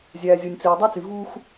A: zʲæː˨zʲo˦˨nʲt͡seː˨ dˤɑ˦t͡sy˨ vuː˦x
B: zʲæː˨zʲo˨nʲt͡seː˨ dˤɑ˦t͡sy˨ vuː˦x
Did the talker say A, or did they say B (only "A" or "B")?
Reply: B